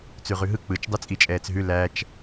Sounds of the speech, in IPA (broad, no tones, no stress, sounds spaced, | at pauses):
t͡s ʉ ʁ ʉ ɦ ɯ k͡p ɯ t͡ʃ dˤ ɯ t͡sʼ i t͡ʃʼ ɛː t͡s ɦ ʉ l æ t͡ʃ